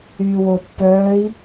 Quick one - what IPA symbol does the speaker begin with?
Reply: yː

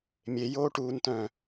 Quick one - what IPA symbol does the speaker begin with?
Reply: mʲ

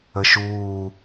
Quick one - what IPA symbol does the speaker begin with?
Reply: ə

